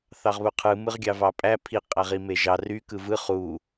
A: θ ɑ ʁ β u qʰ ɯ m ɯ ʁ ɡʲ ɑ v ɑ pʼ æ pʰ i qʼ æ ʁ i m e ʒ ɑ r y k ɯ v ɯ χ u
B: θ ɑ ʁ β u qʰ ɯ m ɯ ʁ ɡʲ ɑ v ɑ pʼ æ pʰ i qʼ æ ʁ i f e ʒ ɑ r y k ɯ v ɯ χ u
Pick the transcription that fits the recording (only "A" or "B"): A